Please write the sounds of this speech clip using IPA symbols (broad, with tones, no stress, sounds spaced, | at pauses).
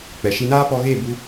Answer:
k͡p ɛ˨ ʃ i˧ n aː˦ p ɔ˧ ɣ e˦˨ b u˧